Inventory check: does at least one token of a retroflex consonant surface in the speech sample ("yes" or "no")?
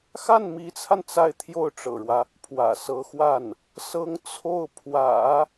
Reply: yes